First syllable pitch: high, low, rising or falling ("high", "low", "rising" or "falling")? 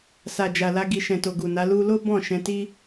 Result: low